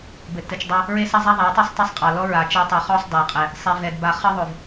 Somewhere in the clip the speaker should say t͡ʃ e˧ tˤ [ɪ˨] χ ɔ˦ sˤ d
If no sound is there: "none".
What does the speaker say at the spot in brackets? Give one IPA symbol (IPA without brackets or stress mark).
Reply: i˨